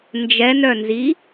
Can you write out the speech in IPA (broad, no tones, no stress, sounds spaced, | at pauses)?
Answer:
n d͡ʒ ɛ n œ n z i